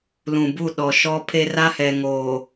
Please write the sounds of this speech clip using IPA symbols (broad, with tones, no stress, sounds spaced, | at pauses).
l ũ˨ b u˦˨ ɗ ɔ˨ ʃ ɔ˦ pʰ e˦ r a˦ h ɛ˨ ŋ oː˨